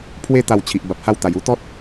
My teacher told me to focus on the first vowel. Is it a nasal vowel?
no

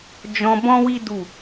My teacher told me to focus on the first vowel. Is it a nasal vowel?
yes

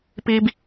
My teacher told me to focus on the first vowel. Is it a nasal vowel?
no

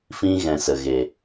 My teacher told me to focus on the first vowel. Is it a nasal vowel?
yes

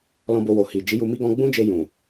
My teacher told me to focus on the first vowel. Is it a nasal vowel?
yes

